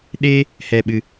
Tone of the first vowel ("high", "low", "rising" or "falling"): high